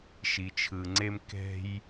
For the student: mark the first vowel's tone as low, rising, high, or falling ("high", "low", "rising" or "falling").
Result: low